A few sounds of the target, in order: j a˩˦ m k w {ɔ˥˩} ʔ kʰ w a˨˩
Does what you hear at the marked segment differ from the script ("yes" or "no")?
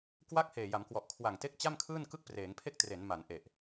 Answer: yes